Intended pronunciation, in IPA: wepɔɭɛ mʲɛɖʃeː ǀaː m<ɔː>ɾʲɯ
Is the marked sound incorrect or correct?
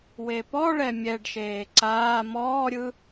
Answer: correct